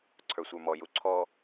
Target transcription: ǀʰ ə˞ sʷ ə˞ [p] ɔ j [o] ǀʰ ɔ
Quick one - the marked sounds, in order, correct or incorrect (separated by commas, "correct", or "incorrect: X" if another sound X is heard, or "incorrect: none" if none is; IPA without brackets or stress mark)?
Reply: incorrect: m, incorrect: u